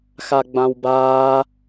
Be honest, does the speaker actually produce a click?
no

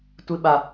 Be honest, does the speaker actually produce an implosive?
yes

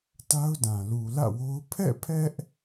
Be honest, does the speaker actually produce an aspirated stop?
yes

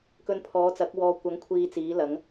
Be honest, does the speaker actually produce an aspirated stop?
yes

